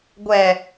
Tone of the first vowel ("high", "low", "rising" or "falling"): low